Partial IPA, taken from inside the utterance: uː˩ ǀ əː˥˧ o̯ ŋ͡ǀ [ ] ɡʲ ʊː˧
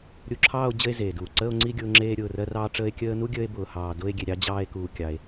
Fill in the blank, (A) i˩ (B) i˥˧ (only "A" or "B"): B